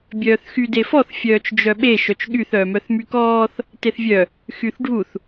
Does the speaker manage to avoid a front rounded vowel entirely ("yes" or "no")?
no